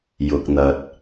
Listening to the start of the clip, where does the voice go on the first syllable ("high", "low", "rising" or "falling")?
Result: low